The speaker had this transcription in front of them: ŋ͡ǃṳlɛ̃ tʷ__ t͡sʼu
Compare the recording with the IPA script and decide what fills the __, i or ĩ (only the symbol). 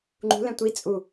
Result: i